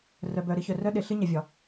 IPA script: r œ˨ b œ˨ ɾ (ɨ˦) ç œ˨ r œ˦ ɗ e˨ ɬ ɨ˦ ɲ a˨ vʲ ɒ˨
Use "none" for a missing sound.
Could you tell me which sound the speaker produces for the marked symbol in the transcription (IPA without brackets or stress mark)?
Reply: ɨ˦